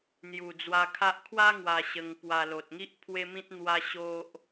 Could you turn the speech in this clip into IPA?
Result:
n̪ j u˨˩ d͡z w a˧ kʰ a˦ ʔ kʰ w a˦ ŋ w a˧ ɕ ə˧ ŋ p w a˧ l o˨ t̚ ŋ i˦ ʔ pʰ w e˦ m ĩ˦ t̚ n̪ w a˦ ɕ o˦ ʔ

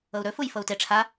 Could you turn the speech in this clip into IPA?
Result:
ɤ u̯ ɾ ɵ f u j f ɤ u̯ t e ʈ͡ʂʰ a

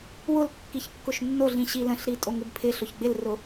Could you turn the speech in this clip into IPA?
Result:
w ʊ l kː i ç kː ʊ ʃ nː o ɮ ĩ ɕ i l ə̃ ɬ ɾ i tʼ o ŋ ɪ b pʰ ɪ ɬ ʊ ç ɡ͡b ɪ l r ʊ

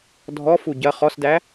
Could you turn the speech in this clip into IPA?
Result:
dʱ ɔ f u ɟ ɐ χ ɔ s d æ

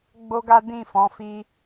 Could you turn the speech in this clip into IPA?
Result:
ɡ͡b o˦ ɡ a˦ d ĩ˦˨ f ɔ̃˨˦ f i˧

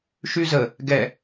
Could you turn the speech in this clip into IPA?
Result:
ʃ y z ə | ɡ ɛ

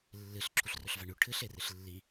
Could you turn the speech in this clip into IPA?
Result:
lː ɨ ɬ ǁʰ u ɬ r ɵ ɬ v a ɳ ʉ ʈʰ ɨ ɬ e r ɨ ɬ lː i

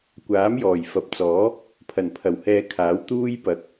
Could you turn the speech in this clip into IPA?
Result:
kʷ aː˨˥ m j ɔː˨˩ j f ɐ˨ p̚ t͡s ɔː˨˥ | pʰ ɐ˨˩ n pʰ ɐ˨˩ w h ɛː˧ kʰ aː˨˥ w t̪ uː˥ j p ɐ˨˥ k̚

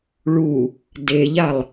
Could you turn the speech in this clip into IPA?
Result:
ɭ u | d e ʎ a lˠ

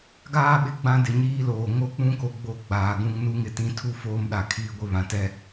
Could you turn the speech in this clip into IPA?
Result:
ɡ aː˦ ɓ ɪ˨ ɡ͡b ã˦ d ɪ˨ ɲ iː˦ l oː˨ ŋ o˦ k͡p ũ˦ k o˨ ɡ͡b o˦ ɡ͡b aː˨ ɡ ũ˦ ŋ n u˦ ŋ ɪ˦ t ĩ˦ tʰ u˦ f oː˦ m ɗ a˨ kʰ iː˦ ɡʷ ɪ˦ β ã˨ t ɛ˦

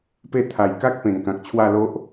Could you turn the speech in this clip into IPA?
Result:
p e˥˧ t̪ʰ a˨˩ j k a˦ k̚ p ẽ˨˩ n k ã˨ k̚ t͡ɕʰ w a˥˧ l o˦ ʔ

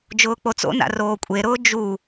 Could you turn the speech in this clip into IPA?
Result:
d͡ʒ ʊː k͡p o t͡s o̰ n a̰ r oː kʷʼ e ɾ ʊː d͡ʒ u

